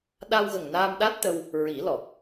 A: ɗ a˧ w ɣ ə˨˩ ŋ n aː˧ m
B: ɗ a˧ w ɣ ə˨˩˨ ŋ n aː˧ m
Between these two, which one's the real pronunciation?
A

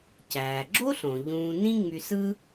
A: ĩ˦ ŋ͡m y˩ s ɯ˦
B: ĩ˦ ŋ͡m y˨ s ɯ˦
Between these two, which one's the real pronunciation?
B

